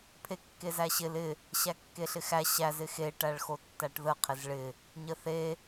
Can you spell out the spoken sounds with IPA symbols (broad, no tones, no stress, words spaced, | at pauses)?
pʰekːezæɕɪl ɪ | ɕækːeɬɪxæ ɕæz ɪxe ʈæɭxotːæʈðə qʰɪzɭɪ | ɲəθe